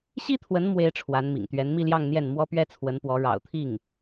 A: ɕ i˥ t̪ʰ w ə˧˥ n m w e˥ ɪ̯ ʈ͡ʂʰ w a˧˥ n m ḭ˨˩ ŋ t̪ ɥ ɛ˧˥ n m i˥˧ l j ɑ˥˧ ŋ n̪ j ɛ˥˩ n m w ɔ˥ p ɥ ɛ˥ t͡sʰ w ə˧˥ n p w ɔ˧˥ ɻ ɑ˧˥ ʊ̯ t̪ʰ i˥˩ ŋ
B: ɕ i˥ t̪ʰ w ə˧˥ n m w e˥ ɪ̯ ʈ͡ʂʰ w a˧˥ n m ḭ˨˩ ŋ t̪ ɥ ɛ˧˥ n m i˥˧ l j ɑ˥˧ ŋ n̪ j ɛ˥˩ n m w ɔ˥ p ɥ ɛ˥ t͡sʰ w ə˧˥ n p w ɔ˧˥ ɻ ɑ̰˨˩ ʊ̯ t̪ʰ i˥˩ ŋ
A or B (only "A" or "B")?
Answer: B